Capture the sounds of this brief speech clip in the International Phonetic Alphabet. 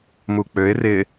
muk͡pøɪ̯ rɪ

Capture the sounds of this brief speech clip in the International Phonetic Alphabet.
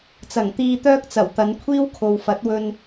t͡sɐ˨˩ŋt̪iː˧t̪œː˥k̚ t͡sɐ˨˩w t̪ɐ˨˧nkʷʰiː˥wkʰo˨w fɐ˨˥t̚wɵ˧n

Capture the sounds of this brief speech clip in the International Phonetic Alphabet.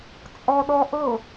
t͡sʼɔɗɔʔɤ

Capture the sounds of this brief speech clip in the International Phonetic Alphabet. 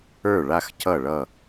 ə˞˥˩ɭa˥˩x cʰʌ˥˩ɭʌ˥˩

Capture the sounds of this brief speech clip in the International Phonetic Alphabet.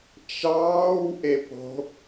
t͡ʃɑːw ʔepo̤

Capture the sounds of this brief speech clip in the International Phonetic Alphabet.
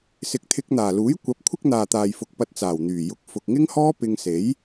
sɪ˨˥k̚t̪ʰɪ˧k̚n̪aː˨˩luː˨˥j kʷɐ˨˥p̚ kʷʰɪ˥k̚n̪aː˨t̪aː˨j fʊ˨k̚pɐ˧t̚t͡saː˨˩wn̪yː˨˩ jʊ˨˥k̚ fʊ˨k̚ ŋɪ˥ŋhɔː˥pɪ˧ŋse˨˥j

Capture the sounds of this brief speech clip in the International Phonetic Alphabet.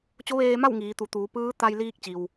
t͡ɕo˧˥ʋeː˧ma˥˨w ŋiː˩˧t̪u˩˧t̪uː˩˧ pɯː˧˥ t̪a˧jliː˧k̚t͡ɕi˩w

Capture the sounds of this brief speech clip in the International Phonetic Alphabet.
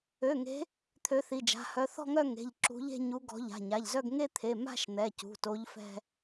ø˩˧˩ŋe̤˨˦ | t̪ʰø˨˦θi˩˧˩d͡ʒa̤˩˧˩hœ˨˦ θɔ̤˥˧ŋœ˥˧ŋe̤˩˧˩ʎ ǁṳ˨˦ʎe̤˥˧ɲu˨˦ ɡɔ̤˨˦ʎa̤˩˧˩ɲa˩˧˩ʎzœ˥˧ɡ ŋe˥˧t̪ʰe˩˧˩ ma̤˥˧ʃn̪ɛ˩˧˩cṳ˩˧˩to˨˦ʎ fɛ̤˥˧

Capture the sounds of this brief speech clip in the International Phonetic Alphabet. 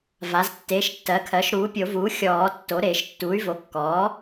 va˩˥ztːeː˩˥ʃtːɜ˩˥kʰɜ˩˥ʃ ɾuː˩˥pʲo˨˩˦vuː˩˥ xʲɔː˨˩˦ tːo˩˥ ɾeː˨˩˦ʃtːuː˩˥y̯vo˩˥kːɔː˩˥

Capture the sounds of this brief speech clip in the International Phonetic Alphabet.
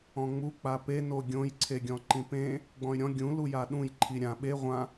ɔ̃ŋ͡mu k͡pape noɡʲõj ǀʰeɡʲɔ̃ǃĩpẽ | ɡ͡bɔ̃y̯ɾʲɔ̃ ɡʲũ lujaɗũj ǃʰiɾʲã ɓe ʁʷã

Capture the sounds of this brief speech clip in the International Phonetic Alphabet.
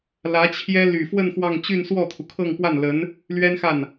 lä˧˥t͡ɕʰjɛ˥ ly˨˩fwə˥˧n xwɑ˥˧ŋ t͡ɕy˥˧nswɔ˥˩t̪ʰu˩ kʰɤ˥˧ŋpwa˥˩nlə˧˥n | lɥɛ˥nxa˥˩n

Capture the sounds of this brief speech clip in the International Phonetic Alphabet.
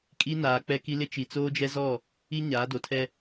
kʼi˦naː˨ k͡pɛ˦ki˦ lɪ˦t͡ʃi˨ t͡soː˦d͡ʒɛ˦zɔ˦˨ | i˦ɲaː˨˦do˨tʰɛ˦

